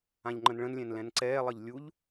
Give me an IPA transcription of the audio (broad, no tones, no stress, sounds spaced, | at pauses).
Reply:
ã ʎ ŋ͡ǃ ə̃ n ɭ ə̃ n lʲ ɛ̃ n l ɛ̃ n ǀ ɛː lˠ ʌ ʎ lʲ u ʎ